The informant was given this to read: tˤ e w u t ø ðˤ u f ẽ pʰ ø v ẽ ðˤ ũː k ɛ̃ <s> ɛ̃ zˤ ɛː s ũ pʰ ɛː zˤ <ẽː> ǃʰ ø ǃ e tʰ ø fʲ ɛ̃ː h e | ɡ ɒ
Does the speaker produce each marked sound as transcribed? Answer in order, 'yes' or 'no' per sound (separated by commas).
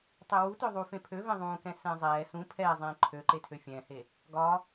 yes, yes